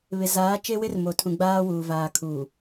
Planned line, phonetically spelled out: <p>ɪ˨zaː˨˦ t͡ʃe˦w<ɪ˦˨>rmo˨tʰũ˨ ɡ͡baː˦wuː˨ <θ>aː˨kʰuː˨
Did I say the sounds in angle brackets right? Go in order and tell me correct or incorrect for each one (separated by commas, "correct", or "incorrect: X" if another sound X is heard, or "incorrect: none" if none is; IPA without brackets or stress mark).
incorrect: β, incorrect: ɪ˦, incorrect: v